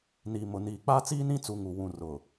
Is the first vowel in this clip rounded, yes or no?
no